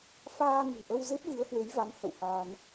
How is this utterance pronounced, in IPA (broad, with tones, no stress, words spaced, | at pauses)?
faː˧ŋɨ̤˨˩ʔə˧w ze˦˥p̚vɨ˨˦ə̯hwe˨˦jva˨˦n hə̰˧˨whaː˧n